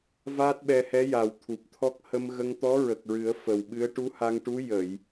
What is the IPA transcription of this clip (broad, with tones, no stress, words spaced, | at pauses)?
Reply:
vaː˦˥t̚ɓɛ˧hɛ˧˥ ja˨˩w t̪ʰu˨˩p̚t̪ʰɔ˦˥k̚ hə˧mɣə˧ŋt̪ɔ˧˥ ɹə˨˩k̚ɹɨ˨˩˦ə̯ fə˨˩wɓɨ˧˥ə̯ ʈu˧˥ha˧ŋʈu˧˥ jə˨˩˨j